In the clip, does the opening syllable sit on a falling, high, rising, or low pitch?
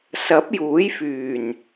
rising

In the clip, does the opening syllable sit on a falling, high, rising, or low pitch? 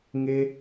high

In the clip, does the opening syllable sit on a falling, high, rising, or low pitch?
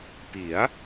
rising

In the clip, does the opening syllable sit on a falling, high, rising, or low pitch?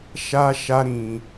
high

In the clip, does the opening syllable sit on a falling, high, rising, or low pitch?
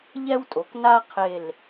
high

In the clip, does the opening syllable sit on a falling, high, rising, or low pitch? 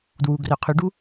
low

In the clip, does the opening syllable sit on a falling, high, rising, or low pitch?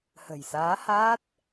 low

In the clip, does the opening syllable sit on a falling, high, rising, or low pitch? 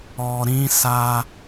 low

